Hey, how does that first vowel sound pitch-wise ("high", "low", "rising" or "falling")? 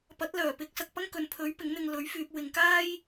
rising